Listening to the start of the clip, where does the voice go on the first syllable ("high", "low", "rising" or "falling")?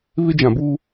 high